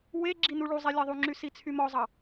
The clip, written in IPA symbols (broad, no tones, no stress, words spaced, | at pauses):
we ɡ͡ǁinuɭuzˤe lʲeðˤuŋ͡ǁy sit͡sʰymɔzˤɑ